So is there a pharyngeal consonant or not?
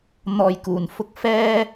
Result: no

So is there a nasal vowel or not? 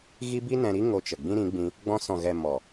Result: yes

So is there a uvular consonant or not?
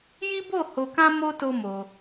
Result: no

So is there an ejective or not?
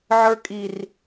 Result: yes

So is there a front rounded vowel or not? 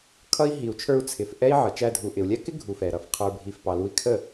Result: no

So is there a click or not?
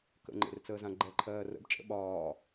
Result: yes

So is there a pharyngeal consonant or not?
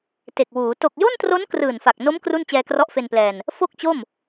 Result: no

